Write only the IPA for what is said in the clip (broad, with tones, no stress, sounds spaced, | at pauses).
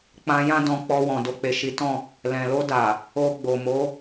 k͡p ã˧ j ã˦ d ɔ̃˧ k͡p ɔ˧ w ɔ̃˨ d o˧ k͡p e˨ ʃ i˨˦ t ɔ̃˦˨ | l ɛ̃˨ l o˧ d a˨ | o˧ ɡ͡b o˨ m o˨˦